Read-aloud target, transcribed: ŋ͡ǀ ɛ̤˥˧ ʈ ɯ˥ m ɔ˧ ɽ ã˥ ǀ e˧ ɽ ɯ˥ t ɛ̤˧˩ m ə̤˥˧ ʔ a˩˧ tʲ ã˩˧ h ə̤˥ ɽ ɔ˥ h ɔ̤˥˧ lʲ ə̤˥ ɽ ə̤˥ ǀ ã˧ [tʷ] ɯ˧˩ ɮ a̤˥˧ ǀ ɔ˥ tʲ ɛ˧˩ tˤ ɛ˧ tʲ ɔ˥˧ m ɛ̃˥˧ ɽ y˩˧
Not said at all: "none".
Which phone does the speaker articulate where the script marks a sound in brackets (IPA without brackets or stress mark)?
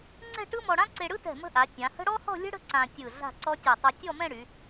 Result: tʲ